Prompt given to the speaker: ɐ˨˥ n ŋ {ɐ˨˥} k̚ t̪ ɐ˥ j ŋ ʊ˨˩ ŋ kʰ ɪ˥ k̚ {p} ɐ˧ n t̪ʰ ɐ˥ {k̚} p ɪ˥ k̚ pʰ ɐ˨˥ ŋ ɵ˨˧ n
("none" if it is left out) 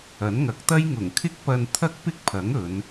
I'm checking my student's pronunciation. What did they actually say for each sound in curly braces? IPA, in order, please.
ɐ˨˥, p, k̚

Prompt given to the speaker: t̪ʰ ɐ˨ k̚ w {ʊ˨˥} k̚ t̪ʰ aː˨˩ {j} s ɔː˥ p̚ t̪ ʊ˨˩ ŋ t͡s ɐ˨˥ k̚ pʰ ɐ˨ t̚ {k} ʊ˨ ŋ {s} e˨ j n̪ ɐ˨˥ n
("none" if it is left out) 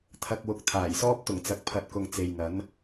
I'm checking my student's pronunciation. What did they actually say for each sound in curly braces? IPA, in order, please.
ʊ˨, j, k, t͡s

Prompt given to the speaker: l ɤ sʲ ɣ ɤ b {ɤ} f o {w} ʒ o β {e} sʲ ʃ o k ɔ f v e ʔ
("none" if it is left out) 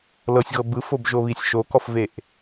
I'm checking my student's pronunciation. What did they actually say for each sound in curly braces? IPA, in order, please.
ɯ, b, i

